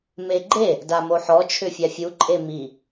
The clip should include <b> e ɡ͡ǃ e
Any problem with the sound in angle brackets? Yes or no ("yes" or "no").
yes